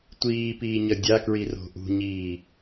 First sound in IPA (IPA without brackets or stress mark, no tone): tʷ